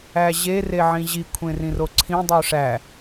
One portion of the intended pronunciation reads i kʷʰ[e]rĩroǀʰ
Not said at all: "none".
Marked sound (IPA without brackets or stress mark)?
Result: ẽ